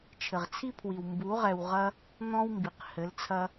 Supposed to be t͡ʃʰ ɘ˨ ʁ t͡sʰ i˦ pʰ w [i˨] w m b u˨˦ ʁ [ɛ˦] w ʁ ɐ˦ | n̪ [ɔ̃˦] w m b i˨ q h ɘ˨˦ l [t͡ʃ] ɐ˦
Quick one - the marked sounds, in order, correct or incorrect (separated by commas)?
correct, incorrect, correct, incorrect